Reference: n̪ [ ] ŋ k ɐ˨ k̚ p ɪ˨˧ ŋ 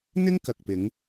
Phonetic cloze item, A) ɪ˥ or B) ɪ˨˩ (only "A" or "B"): A